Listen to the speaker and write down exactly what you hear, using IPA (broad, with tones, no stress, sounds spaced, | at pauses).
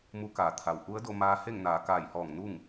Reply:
m u˧˥ k aː˩˧ t̪ʰ a˩ w ʔ u˧˥ ə̯ d o˧ m aː˧˥ h e˥˨ ŋ n aː˩˧ k aː˧˩ j h ɔː˧˩ ŋ n u˥˨ ŋ